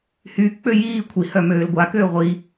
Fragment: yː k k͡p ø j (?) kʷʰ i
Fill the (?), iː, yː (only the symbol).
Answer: iː